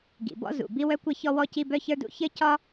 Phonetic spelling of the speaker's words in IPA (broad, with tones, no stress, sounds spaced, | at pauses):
ɡ ḭ˩ b ɔ̰˥ z ṵ˩ b i˥ w œ˥ kʷ ɘ˥ ç ɔ˥ w ɔ˥ c i˥ b œ˥ ç ə˞˥ d ṵ˥ ç ɘ˥ c ɒ˥